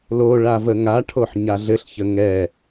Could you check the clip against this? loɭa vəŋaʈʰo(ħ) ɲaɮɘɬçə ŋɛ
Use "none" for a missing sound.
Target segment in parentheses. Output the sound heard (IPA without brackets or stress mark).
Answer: ħ